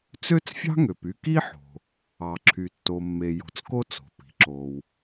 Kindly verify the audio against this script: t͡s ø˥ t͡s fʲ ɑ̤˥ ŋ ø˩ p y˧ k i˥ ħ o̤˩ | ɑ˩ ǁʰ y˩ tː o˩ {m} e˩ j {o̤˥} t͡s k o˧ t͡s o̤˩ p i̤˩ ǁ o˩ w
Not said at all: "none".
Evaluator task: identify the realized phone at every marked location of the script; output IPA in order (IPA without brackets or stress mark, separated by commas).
mː, o̤˩